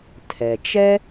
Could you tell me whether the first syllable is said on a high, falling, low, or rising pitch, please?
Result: low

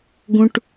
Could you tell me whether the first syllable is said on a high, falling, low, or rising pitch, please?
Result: high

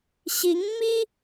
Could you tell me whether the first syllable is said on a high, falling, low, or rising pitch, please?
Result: rising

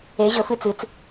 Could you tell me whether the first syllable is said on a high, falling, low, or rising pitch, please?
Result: rising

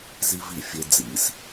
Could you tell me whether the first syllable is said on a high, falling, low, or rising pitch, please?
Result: high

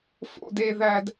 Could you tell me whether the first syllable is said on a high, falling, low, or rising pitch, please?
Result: high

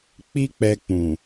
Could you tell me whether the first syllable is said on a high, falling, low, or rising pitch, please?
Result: high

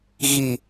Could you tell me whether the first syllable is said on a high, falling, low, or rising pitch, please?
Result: low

